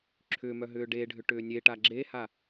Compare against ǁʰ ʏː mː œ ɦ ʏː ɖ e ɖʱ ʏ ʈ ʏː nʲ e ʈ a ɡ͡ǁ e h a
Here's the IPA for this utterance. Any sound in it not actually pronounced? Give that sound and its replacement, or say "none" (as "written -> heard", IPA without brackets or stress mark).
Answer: mː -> m